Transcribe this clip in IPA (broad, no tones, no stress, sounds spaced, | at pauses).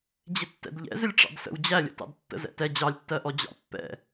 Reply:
d͡ʑ ɪ tː ɛ̰ d ʎ ɛ̰ z ɪ lʲ ʈ͡ʂ ɑ̰ d s ə̰ w d͡ʑ æ lʲ ə̰ t ɑ̰ d tː ə̰ z ɛ̰ t ɛ d͡ʑ ɑ lʲ tː ɜ ʔ ɔ d͡ʑ ɑ̰ pː ɛ̰